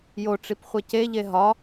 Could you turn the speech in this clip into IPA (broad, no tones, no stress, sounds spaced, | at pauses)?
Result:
j o ʈ͡ʂ i p χʷ ɛ c e ʎ e ɦ ɒ